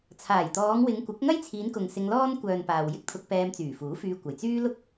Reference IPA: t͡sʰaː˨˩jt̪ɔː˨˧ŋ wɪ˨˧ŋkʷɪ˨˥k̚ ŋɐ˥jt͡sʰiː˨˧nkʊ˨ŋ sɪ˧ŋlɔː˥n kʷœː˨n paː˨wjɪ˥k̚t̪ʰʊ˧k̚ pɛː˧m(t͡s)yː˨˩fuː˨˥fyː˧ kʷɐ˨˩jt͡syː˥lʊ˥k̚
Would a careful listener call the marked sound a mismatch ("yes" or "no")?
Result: no